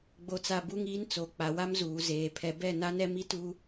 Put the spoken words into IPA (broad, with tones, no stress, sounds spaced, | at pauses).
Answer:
ɡ͡b o˨ t͡s a˨ b u˦ ŋ iː˦ n t͡s o˨˦ k͡p a˨ w a˦ m z uː˨ z eː˨ pʰ ɛ˨ b ɛ˦˨ n a˦ n ɛ˦ m i˦ t u˦